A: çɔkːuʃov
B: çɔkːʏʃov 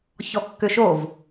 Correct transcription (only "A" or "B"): B